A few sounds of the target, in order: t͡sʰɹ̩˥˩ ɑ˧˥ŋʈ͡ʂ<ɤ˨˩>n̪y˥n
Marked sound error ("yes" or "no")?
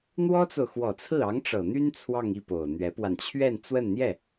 no